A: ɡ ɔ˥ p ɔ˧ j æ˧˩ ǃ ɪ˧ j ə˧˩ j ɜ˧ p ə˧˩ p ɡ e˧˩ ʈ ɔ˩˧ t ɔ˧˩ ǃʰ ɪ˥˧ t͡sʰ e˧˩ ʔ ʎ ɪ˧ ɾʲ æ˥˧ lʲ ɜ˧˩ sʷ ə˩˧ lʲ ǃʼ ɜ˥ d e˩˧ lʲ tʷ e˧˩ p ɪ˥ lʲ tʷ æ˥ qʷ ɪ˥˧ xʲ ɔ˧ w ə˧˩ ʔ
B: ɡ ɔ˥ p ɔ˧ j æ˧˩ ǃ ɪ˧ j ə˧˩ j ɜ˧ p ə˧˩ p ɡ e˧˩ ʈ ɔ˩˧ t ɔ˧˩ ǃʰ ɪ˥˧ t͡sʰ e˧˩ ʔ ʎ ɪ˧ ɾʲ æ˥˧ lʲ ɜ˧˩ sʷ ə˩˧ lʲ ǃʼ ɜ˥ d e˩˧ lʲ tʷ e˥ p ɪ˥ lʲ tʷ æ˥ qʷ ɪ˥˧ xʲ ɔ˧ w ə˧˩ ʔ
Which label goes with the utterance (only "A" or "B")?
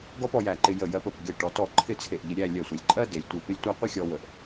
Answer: A